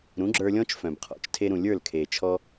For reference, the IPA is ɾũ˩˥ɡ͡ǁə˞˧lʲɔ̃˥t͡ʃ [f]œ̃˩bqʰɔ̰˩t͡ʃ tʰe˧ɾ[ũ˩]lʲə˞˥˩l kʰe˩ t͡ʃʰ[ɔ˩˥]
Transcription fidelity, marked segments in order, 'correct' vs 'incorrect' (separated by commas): correct, correct, incorrect